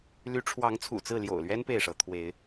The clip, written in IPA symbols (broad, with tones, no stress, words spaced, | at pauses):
ly˨˦ʈ͡ʂʰwɑ˨˦ŋt͡sʰṵ˨˩ t͡sɹ̩˥˨ ljo̰˨˩ʊ̯lɥɛ˦n pe˥˨ɪ̯ʂɤ˨˦ t̪ʰwe˨˦ɪ̯